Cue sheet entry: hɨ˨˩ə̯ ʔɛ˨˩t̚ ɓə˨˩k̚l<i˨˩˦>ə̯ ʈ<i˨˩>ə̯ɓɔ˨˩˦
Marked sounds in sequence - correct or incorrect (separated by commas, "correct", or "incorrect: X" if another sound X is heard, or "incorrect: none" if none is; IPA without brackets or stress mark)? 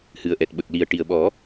incorrect: i˨˩, correct